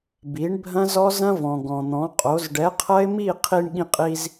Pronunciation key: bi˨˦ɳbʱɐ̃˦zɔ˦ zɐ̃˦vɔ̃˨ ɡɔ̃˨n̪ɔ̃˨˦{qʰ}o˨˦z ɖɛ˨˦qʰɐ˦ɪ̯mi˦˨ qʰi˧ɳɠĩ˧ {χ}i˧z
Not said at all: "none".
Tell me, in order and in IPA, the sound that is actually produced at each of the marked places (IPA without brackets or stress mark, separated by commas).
qʼ, qʼ